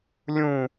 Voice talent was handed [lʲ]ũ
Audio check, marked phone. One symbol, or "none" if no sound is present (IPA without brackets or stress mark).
lʲ